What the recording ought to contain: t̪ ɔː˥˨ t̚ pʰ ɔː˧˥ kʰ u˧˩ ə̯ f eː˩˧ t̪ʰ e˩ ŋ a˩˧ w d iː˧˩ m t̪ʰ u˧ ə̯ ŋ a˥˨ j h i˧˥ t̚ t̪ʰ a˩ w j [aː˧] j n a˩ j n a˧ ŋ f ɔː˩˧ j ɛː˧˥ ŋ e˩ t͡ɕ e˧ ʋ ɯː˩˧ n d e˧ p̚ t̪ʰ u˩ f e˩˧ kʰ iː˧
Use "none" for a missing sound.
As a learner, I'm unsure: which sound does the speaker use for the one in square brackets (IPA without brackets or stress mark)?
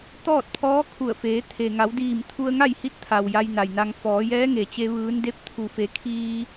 a˧